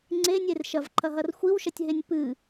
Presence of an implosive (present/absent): absent